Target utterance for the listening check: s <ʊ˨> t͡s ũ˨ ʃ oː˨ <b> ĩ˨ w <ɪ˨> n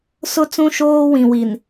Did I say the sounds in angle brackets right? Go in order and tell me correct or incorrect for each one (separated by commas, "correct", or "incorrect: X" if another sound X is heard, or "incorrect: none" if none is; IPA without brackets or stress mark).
correct, incorrect: w, incorrect: i˨